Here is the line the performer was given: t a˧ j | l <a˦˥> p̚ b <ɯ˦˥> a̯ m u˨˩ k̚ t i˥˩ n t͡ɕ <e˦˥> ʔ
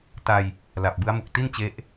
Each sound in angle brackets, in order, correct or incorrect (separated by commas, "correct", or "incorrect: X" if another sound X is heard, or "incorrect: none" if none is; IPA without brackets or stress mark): incorrect: a˨˩, correct, correct